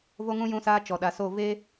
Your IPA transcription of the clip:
v o˦ ŋ ũ˦ j ũ˦ s aː˦ t͡ʃ ɔ˨ ɗ a˨ s o˦˨ v eː˦

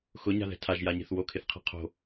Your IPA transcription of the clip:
x ʊ ɲ a̤ ð ɛ̤ tʰ a ʒ j a ɲ e̤ θ w o kʰ ɪ θ qʰ ɛ̤ qʰ o̤

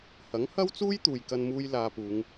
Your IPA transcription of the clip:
h ɐ˨˥ ŋ h ɐ˥ w t͡s uː˥ j t̪ uː˨ j k ɐ˧ n m uː˧ j l aː˧ p uː˨˧ ŋ

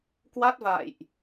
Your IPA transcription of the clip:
k w a˦˥ t̚ v a̰ː˧˨ j ʔ

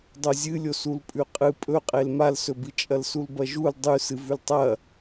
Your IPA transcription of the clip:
dˤ o zʲ ɨ lʲ o s u l pʼ ʉ qʼ ɨ pʼ ɵ qʼ e l m a l s ɵ b ɨ t͡ʃʼ ɐ l s u l b ɐ ʒ u l dˤ ʉ s ɨ v ʉ l tˤ ɐ

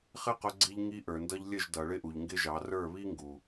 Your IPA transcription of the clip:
χ ɪ˦ q ʊ˧ ɡ͡ǀ i˧ ʎ ŋ i˧ ʔ ə˞˨ n d ʌ˧ ʎ lʲ ə˦˨ ʒ d ʌ˨ ɭ ɪ˦ ʔ u˨ ʎ ŋ ɡ ɪ˦ ʒ ɑ˨˦ r ə˞˦˨ β i˦ ŋ ɡ u˨

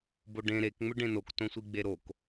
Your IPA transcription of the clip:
b o ɖ ẽ ɾ e k ŋ͡m ʏ ɖ ẽ n o k t õ sʷ i ɡ͡b e ɾ o k

